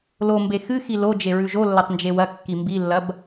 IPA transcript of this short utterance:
l o m b e x ɨ x i l o d͡ʒ e ɹ ʉ ʒ o lː ɐ tˤ n d͡ʒ e w ɐ kː i m b i lː ɐ b

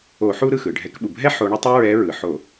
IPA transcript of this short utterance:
o˧˩˧ ħ u˦ ɾ ɯ˥˩ x ɯ˩ ɖʱ ɛ˨˦ k ɓ u˩ bʱ ɛ˦ ħ o˨˦ ɳ ɤ˦ tˤ u˦ ɹ ɛ˨˦ ɹ ɯ˩ ħ o˧˩˧

